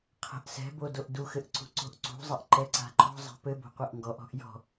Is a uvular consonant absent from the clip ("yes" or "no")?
no